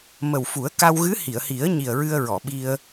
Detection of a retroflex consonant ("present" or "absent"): absent